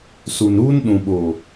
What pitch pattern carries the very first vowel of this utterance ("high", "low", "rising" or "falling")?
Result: low